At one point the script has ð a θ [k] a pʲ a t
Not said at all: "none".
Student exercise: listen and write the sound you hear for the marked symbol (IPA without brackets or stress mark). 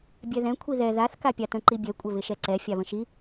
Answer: k